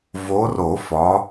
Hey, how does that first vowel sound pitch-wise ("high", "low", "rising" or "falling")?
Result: rising